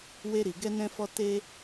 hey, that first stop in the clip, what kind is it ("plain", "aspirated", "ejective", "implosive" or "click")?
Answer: plain